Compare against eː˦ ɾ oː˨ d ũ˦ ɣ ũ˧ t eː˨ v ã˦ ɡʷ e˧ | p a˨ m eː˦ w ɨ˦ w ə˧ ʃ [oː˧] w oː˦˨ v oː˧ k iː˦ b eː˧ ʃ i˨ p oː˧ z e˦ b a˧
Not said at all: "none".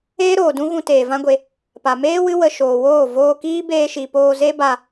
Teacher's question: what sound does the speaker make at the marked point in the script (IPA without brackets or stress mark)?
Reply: oː˨